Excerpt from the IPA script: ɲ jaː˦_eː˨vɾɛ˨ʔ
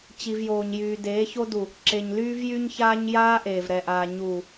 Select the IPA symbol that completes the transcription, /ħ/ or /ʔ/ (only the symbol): ʔ